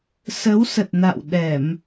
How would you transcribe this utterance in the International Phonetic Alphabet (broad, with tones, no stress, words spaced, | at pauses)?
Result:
sə˨˦wsə˨˩t̚na̰˧˨w ɗɛ˧˩˨m